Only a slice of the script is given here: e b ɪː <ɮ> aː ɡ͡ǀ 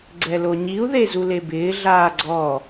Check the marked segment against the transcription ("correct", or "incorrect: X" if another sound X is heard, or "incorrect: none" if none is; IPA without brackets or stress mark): correct